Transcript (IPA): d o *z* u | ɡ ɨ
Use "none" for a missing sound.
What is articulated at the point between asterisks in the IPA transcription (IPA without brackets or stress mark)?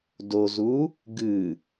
z